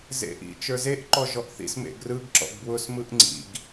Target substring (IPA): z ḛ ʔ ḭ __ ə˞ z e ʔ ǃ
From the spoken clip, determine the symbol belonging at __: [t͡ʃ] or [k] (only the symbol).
t͡ʃ